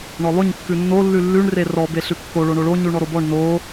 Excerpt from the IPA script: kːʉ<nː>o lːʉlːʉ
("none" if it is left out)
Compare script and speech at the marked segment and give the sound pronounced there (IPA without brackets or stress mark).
nː